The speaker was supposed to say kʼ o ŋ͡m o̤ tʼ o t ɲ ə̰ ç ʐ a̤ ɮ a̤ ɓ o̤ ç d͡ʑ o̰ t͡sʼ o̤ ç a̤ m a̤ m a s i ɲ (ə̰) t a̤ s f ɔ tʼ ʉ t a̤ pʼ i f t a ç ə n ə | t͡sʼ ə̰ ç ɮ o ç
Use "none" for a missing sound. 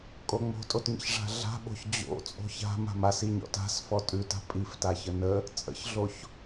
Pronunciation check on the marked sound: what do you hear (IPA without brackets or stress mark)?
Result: ɔ̰